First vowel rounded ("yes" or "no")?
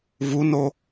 yes